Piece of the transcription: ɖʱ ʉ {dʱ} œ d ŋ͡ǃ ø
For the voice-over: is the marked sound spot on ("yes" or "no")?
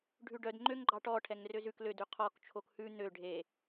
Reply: no